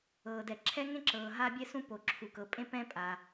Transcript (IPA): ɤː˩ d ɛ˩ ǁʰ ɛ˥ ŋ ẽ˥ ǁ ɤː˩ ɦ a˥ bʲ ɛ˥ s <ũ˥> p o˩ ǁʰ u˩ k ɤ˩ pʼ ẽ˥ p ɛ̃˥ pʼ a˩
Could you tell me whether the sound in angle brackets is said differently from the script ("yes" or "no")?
no